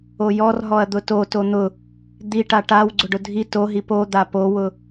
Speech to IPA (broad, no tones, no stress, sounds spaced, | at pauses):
o j ɔ r ɦ ɔ ɐ̯ d̪ ʊ t o t o n̪ ʊ | d̪ i ʈ a ʈ a w ɡ͡ǀ ʊ ɖ ʊ dʱ i t o ɦ i p o d̪ a p o w ʊ